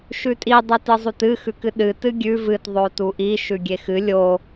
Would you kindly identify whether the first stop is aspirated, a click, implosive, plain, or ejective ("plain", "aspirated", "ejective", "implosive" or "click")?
ejective